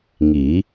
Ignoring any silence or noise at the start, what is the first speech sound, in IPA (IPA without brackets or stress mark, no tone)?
ŋ